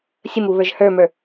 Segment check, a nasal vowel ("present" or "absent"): absent